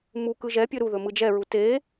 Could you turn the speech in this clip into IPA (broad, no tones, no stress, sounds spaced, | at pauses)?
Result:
m u k ɯ ʒ ɛ pʲ ɵ ɾ u ð ɵ m ɯ d͡ʒ ɛ ɹ u t e